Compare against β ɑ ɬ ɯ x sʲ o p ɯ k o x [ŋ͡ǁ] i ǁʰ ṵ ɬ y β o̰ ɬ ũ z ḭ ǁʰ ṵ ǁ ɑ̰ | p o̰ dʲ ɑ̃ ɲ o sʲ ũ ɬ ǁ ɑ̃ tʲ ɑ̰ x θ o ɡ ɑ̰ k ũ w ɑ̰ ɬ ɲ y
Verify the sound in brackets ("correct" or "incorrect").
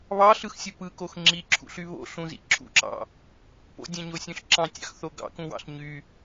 correct